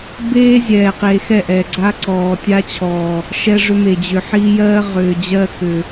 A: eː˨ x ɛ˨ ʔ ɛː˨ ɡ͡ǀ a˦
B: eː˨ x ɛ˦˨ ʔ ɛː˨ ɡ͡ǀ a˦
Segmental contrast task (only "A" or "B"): B